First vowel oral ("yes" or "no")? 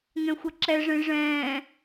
no